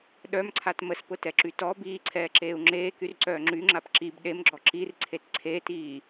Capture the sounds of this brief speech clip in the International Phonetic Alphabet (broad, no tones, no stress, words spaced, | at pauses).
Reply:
ɗœmǀʰat məspʊtɛǁy tɔ biːǀʰɛːǁeːu̯ ŋ͡ǁeːkyrǀœː ŋ͡ǁyŋ͡ǁap ǁib ɗemɡ͡ǁɔ ǁirǀʰet ǀʰeːtiː